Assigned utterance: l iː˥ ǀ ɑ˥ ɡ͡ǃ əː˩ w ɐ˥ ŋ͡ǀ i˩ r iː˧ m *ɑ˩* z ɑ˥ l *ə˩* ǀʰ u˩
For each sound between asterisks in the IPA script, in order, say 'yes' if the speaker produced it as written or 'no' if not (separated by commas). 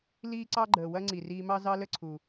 no, no